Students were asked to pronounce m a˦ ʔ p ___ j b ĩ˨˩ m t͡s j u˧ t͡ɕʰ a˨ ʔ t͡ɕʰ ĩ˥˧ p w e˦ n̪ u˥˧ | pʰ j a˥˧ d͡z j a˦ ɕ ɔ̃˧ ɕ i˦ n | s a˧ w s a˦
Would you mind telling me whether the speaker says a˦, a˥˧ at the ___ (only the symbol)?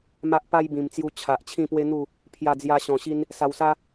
a˦